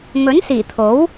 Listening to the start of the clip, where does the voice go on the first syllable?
rising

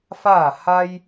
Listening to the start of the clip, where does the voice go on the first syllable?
falling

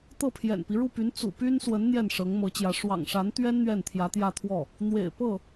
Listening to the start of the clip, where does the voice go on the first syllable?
falling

